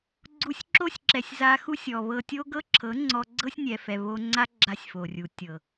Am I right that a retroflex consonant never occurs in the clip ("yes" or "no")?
yes